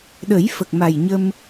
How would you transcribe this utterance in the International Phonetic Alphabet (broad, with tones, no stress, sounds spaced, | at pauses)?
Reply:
ɗ ə˨˩˦ j f ə˨˩ k̚ m a˨˩ j ɲ ə˧ m